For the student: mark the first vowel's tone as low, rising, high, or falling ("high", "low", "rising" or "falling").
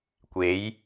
rising